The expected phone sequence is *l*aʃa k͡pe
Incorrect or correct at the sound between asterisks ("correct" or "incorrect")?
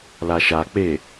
correct